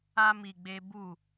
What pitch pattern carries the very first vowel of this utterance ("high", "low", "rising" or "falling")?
high